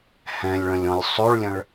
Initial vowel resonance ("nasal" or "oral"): nasal